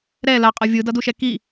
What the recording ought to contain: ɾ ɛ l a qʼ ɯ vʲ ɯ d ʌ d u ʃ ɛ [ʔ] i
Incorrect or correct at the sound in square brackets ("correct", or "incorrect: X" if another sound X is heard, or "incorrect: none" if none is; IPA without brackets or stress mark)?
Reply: incorrect: k